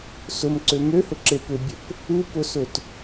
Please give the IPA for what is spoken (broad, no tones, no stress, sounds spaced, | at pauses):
s ʊ m ǀ ø m ø h ʊ ǁ e p ʏ bʲ ə p | u p ʊ s ʊ t